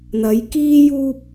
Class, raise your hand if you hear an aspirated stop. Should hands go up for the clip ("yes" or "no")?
no